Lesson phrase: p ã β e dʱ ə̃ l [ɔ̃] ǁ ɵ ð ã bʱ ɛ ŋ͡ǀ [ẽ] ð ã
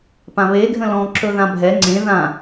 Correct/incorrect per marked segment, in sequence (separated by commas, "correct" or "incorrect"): correct, correct